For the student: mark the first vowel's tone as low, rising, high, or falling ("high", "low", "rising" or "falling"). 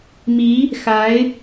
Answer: rising